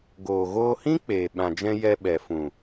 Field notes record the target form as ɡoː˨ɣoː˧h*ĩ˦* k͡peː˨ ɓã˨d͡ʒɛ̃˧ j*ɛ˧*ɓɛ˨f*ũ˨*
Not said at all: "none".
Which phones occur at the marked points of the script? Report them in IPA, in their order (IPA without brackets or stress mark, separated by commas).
ĩ˦, ɛ˧, ũ˨